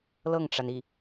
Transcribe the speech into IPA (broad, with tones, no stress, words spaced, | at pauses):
lɤ˥˩ŋʈ͡ʂa˩ni˥˩